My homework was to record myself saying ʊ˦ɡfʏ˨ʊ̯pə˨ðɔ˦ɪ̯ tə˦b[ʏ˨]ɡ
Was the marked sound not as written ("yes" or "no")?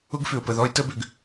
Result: no